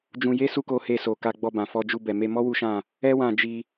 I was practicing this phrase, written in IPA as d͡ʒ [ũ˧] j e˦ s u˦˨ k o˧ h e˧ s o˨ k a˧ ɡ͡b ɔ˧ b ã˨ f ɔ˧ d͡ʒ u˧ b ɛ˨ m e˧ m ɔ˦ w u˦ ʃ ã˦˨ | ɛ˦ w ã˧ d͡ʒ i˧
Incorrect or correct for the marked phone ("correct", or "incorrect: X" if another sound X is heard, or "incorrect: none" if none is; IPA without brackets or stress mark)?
correct